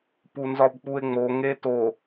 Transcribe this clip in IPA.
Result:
p u n z ɒ b k͡p u e̯ ŋ͡m o ŋ e t o

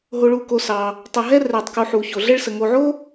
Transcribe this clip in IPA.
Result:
ɦ o˧ ɭ u˧ k o˧ s ɑ˧ | tˤ ə˧ ɦ ɛ˥ r ɛ˧ tˤ k u˧ ħ u˧ ç o˧ ɮ ɛ˥ ɭ s ə˧ ŋ o˧ ʕ o˥

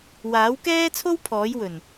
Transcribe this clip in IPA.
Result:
w aː˨˥ w k ɛː˥ t͡sʰ o˥ w pʰ ɔː˨˥ j w ɵ˨˩ n

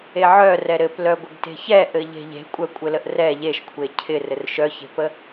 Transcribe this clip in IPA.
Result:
e ʕ œ r ɛ ɾ ɘ p l œ ɡʷ ə ɡ t e̤ ç ɛ ʔ ɘ ʎ e̤ ʎ e̤ kʷʼ œ kʷʼ ɘ l ə ʔ r ɛ ʎ e ʃ kʷʰ e cʰ ɪ r ɘ r ʃ œ ç e̤ p ə

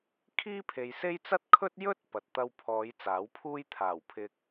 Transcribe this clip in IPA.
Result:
kʰ iː˥ pʰ e˨ j s e˥ j t͡s ɐ˥ t̚ kʰ ɵ˥ t̚ j ɵ˥ t̚ p ɐ˨ t̚ t̪ ɐ˥ w pʰ ɔː˨˧ j t͡s aː˨˥ w pʰ uː˥ j t̪ʰ aː˨˩ w pʰ ɪ˧ k̚

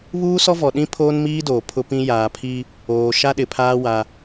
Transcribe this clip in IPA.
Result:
β uː˦ s ɔ˦ v ɔ˨ ɗ ĩ˦ pʰ oː˦ n m iː˦ d oː˨ pʰ ʊ˦ p ĩ˦ j aː˨ pʰ i˦ | oː˨ ʃ a˦ ɗ ɪ˨ pʰ aː˦ w a˦

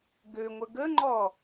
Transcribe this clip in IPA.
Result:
ɡ ø ŋʷ ə ɡ ə ŋ͡ǃ ɔ

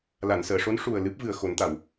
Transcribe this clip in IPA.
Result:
l a˨˩˨ n s əː˨˩˨ ʂ o˧˥ n ʂ u˨˩ ə̯ l ɨ˦˥ p̚ v ɨ˨˩ ə̯ x o˨˩˦ n t̪ a˨˩˨ w

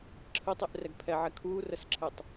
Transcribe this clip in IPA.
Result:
ǁʰ ə tˤ e ʔ r ɛ ɡ pʰ ɛ ʕ ɛ kʰ uː r ə s ǁʰ ɛ tˤ

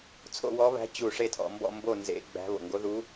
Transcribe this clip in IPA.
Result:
t͡sʰ o̰˥˨ w ɔ˧˥ β æ̤˧˥ t͡ɕ u˧˩ ʂ e˥˨ tʰ ɔ̰˧˩ m b ɔ̰˥˨ m b o˥˨ n z ḛ˧˥ ɡ͡b æ̤˧˥ β o̰˩ ŋ ɡ o˧˥ ð u˧˥

